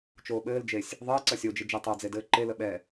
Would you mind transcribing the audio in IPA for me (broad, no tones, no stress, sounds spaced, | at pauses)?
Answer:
t͡ʃ oː ɓ ɘː l d͡ʒ e sʲ | ðˤ ɘː ǀ ʌ sʲ o d͡ʒ ɪ d͡ʒ e tˤ o d͡z e d ɘː ǃ e l ə ɓ ɛ